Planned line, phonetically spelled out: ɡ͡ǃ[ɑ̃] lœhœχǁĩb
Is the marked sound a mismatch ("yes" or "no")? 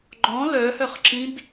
yes